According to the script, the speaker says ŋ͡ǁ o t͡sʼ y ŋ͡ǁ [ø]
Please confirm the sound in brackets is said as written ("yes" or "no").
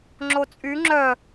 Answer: no